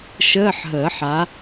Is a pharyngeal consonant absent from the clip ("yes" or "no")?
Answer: no